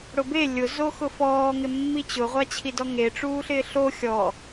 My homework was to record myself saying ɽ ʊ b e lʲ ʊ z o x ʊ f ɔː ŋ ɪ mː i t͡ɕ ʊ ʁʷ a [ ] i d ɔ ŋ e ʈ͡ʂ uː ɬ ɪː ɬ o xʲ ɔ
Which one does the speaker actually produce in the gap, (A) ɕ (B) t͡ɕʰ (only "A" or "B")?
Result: B